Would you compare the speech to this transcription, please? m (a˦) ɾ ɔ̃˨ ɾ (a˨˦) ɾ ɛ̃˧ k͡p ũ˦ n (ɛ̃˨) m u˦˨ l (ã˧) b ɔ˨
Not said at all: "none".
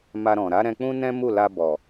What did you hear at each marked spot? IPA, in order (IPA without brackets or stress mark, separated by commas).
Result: a˧, a˨˦, ɛ̃˦, a˧